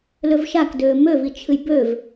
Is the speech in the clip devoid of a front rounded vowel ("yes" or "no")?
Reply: no